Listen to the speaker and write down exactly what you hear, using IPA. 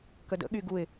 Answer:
k ə d ə̰ ɠ y ɡ u ɪ̯

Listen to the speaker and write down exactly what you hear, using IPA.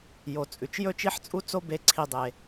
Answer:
j o˩ t͡sʼ ʉ˩ t͡ʃ j ɵ˥ t͡ʃ i˥ ħ t͡sʼ u˥ t͡s o˥ b e˧ ǀʰ i˧ dˤ e˩

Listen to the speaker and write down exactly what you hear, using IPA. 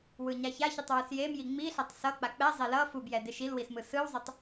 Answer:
w ɯ ɲ a ç a ç i tˤ w ɯ s j e m j i ŋ͡m i ɬ a tˤ s ʌ k͡p a k͡p ɛ zˤ e l ʌ f u b j ɛ d e ʃ i l w i s m ɯ s ɯ w zˤ ʌ tˤ

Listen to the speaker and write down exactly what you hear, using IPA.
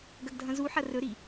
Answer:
ɡ ɐ ɡ dʱ ɐ̃ z u ħ ɐ r ɵ ɾ i

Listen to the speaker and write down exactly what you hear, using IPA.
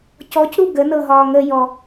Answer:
c ɔ c ɾ u ɡ ə n ɤ ɦ ɒː ŋ ə j ɔ

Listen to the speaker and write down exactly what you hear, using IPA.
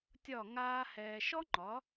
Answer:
tʲ ɒ˦˨ ŋ aː˦ h ɛː˧ ʃ ɔ˦ ŋ͡ǃ ɒ˨˦

